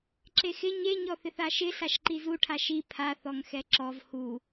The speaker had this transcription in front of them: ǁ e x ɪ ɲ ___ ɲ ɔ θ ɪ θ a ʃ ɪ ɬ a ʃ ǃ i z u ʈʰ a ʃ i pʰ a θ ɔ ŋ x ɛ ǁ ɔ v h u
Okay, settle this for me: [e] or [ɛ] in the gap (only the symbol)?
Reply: e